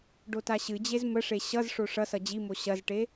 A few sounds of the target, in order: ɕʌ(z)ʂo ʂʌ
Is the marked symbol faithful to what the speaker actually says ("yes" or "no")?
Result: yes